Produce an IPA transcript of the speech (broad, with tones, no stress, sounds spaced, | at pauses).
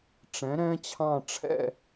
ʈ͡ʂ ɛ̃˨˥ ɾ ɛ̃˦˥ t͡ɕʰ ɑ̃˥˧ ʈ͡ʂʰ ɛ̰˥˧